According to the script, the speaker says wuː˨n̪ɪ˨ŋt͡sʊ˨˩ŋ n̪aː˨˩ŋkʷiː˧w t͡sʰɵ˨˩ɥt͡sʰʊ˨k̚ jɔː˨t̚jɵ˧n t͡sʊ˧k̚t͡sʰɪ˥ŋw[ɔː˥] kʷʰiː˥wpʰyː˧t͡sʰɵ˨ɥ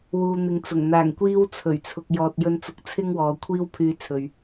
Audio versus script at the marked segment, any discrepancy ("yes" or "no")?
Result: yes